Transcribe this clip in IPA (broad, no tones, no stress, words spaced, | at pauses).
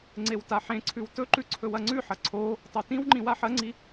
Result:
ŋ͡ǀewtaħẽǀʰʉw tɵǃʉ ǀʰɵwɐŋ͡ǀʉħɐ ǀʰo | tˤotĩwŋ͡ǃĩ waħɐŋ͡ǀi